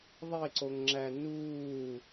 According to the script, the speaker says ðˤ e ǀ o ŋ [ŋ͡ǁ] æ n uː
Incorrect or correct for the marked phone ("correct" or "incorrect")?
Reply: correct